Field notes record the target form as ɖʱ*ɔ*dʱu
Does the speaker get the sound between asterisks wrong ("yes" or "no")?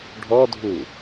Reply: no